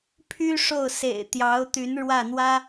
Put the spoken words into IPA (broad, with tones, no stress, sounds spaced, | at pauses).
pʰ y˥ ʂ o˥˩ ʊ̯ s ḛ˨˩ ɪ̯ t̪ j ɑ˧˥ ʊ̯ t̪ y˧˥ n ɻ w ä˥˩ n̪ w ä˥